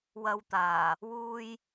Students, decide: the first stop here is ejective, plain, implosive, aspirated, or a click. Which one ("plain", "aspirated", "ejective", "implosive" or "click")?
plain